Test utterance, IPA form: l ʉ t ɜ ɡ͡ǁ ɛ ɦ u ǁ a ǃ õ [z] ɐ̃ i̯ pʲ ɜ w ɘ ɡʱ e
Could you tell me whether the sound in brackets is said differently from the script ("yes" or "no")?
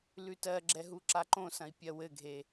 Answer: yes